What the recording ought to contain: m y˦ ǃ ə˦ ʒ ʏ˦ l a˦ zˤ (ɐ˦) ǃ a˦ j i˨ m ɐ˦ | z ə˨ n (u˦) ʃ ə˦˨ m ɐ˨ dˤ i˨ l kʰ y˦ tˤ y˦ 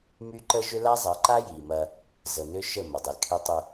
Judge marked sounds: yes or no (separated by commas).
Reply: no, no